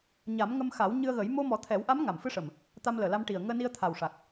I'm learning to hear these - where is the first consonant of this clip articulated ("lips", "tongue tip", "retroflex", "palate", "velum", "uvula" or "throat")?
palate